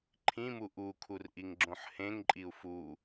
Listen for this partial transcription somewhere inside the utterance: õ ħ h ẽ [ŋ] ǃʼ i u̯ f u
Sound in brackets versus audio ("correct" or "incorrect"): correct